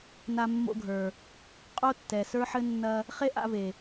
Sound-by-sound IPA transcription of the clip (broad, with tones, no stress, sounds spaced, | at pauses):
n a˧ mː o̰˧ ɡʱ ə˞˨ | qʼ o˦ tː ɛ˨ s ə˞˦ ħ ɘ˦ nː ɐ˧ | χ e˦ ʔ a̰˧ v e˨